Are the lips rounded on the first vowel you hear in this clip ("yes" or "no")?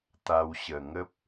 no